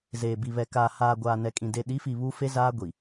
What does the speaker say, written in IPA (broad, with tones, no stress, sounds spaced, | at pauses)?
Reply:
z eː˨ b i˨ β ɛ˨ k aː˨ h aː˨ ɡʷ aː˨ n ɛ˨ kʼ ĩ˨ d e˨ ɗ i˨˦ f i˨ β u˦ f e˦ z aː˦ ɡʷ i˨